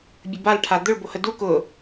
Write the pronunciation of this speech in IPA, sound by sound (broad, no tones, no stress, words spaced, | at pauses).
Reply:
bʲəbal ʈʰad̪ʊɭ bohədu kʊ